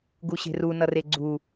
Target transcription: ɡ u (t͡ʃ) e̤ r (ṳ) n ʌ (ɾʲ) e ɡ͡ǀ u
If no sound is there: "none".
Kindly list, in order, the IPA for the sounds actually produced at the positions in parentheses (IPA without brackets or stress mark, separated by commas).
ɕ, u, r